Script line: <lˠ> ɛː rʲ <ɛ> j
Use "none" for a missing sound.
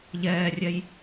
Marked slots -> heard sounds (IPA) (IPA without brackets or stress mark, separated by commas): ʎ, ɛ